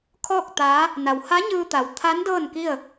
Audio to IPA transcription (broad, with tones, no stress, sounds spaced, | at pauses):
kʰ ɔː˥˨ k̚ t̪ aː˧˥ | n a˩ w h a˧˥ ɲ ɯː˧ t̪ a˩ w t̪ʰ a˧˥ n d ɤː˥˨ n k i˥˨ ə̯